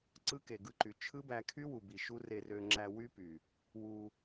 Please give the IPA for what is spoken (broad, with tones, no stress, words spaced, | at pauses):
ǀɯ˦ke˨ɡɯ˧ǃy˨ t͡ʃʰɯ˦bæ˧kʰy˦wu˨ bi˨ʃu˦ re˧rø˧ŋ͡ǁæ˧ wy˦py˨ | wu˧